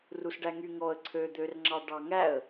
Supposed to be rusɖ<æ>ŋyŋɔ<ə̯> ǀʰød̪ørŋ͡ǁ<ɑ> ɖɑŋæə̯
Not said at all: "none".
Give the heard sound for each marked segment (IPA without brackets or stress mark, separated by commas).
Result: æ, ə̯, ɑ